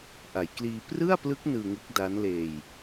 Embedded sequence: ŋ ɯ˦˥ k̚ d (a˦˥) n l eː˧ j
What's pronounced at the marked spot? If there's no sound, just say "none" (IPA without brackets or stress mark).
a˦˥